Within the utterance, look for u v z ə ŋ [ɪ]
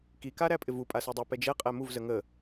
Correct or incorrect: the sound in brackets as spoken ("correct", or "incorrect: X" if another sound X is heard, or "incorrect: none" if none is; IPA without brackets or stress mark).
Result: incorrect: ə